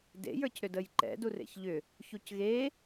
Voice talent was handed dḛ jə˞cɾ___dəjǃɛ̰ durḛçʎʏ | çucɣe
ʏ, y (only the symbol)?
ʏ